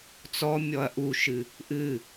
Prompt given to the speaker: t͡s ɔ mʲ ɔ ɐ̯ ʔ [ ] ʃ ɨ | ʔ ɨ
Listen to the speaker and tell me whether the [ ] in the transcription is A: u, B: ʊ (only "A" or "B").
A